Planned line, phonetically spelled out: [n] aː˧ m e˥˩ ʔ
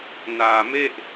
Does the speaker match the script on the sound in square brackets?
yes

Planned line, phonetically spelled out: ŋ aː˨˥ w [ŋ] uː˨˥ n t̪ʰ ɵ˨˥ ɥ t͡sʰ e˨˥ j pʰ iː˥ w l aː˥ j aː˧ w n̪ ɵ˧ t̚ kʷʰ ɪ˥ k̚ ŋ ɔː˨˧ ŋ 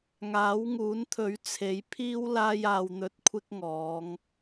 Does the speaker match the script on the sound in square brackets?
yes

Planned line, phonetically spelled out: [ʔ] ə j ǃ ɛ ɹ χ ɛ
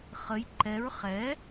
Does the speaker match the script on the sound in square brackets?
no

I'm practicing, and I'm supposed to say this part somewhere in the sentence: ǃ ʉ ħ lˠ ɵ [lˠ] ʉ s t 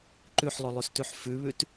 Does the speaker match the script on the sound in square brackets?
yes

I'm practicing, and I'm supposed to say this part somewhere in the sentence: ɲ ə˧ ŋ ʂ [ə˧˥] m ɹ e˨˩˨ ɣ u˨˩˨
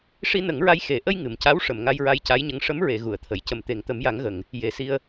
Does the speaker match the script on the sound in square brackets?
yes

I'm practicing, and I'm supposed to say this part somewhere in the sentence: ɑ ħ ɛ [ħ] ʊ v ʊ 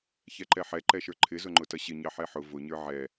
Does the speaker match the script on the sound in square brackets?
yes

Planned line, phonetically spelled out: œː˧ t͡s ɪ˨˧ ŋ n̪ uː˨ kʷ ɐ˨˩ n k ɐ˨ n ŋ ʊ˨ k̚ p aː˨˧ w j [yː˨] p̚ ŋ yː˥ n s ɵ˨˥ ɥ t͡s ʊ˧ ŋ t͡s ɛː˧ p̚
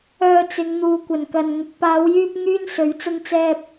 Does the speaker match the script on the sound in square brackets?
no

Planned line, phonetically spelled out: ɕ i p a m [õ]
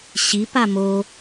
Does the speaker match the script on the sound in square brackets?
no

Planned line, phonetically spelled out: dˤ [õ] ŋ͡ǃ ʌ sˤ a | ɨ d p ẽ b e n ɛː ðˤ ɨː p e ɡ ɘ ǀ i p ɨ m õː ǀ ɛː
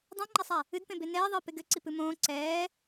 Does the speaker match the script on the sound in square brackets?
yes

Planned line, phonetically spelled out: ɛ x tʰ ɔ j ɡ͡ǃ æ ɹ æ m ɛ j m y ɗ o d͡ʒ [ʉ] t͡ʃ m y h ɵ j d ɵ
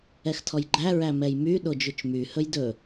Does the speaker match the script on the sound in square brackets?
yes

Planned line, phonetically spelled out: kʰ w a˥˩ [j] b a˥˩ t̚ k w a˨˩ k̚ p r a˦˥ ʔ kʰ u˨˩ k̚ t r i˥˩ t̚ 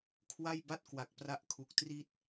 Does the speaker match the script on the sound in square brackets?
yes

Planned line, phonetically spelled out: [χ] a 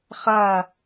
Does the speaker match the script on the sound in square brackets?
yes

